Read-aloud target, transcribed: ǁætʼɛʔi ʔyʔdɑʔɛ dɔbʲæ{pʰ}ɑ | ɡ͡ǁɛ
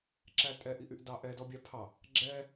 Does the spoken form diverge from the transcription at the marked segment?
no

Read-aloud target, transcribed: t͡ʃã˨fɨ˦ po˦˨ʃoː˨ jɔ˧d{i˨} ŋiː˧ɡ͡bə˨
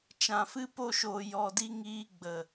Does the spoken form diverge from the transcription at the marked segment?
yes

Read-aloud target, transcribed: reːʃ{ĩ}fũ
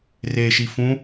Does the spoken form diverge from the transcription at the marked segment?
yes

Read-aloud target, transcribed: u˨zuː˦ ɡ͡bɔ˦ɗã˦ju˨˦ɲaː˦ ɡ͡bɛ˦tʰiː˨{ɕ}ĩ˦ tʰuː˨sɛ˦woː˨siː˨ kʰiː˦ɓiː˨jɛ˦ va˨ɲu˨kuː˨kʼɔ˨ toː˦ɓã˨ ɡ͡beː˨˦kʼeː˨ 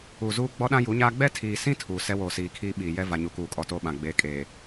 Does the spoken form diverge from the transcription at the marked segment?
yes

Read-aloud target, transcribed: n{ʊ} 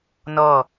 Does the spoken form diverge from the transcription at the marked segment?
yes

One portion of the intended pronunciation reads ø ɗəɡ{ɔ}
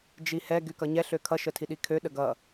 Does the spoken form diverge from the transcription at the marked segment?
yes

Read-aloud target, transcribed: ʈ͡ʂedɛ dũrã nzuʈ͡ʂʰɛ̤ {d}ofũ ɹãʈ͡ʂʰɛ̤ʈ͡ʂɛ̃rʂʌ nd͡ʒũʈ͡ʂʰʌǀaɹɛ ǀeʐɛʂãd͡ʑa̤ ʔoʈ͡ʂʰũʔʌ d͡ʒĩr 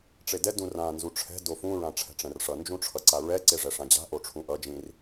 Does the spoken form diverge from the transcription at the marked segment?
no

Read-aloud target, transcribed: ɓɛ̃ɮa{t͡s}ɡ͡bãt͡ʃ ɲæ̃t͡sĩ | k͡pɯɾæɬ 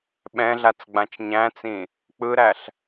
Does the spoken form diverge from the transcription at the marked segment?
no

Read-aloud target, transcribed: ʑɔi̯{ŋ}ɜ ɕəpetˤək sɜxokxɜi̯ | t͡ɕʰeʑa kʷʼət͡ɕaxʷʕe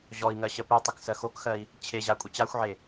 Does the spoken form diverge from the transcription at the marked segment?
no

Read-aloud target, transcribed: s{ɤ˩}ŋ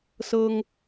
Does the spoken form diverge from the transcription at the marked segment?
yes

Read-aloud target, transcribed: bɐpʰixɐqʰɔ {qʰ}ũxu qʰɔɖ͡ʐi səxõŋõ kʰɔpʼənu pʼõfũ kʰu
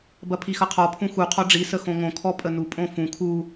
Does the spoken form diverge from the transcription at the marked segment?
yes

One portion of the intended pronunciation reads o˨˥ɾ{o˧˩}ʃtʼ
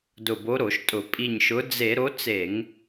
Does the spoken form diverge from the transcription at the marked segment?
yes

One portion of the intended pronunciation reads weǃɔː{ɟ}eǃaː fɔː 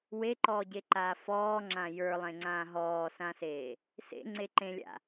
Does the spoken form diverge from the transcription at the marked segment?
no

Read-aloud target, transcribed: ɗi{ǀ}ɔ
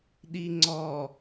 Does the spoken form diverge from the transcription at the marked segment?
yes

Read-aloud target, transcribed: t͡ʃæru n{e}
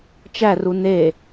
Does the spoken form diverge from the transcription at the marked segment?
no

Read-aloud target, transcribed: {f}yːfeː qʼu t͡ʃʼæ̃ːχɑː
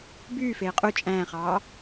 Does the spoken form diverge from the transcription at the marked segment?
yes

